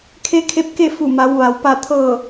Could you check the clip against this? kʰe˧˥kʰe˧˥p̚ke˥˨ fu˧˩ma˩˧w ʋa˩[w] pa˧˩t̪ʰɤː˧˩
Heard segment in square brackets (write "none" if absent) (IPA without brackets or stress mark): w